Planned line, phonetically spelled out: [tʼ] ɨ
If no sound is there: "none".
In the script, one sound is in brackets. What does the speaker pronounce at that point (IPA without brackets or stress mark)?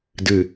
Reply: d